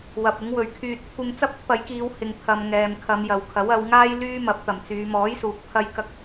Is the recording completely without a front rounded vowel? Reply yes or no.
no